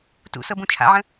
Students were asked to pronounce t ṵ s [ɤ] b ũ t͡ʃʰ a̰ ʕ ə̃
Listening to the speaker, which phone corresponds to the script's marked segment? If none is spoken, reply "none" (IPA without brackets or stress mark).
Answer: ɤ